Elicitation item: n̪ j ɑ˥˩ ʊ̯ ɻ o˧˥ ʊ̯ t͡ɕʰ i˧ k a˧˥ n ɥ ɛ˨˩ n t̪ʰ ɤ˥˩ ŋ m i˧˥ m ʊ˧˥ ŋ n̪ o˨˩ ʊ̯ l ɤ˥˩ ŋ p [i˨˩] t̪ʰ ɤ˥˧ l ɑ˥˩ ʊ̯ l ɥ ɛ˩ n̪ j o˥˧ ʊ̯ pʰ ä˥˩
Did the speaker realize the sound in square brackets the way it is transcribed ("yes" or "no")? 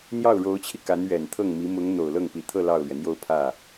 yes